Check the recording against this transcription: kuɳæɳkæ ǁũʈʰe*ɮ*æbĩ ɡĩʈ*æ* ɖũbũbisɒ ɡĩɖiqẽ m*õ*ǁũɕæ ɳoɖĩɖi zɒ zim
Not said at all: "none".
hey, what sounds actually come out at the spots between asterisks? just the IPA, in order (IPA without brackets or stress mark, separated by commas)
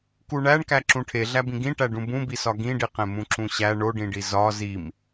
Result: ɮ, æ, ũ